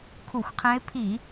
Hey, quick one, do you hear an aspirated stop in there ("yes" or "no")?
yes